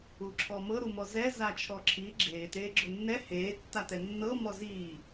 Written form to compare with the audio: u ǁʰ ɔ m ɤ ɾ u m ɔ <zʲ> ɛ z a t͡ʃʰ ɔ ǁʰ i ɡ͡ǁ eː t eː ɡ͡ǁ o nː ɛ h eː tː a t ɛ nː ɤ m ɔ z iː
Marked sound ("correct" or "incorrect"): incorrect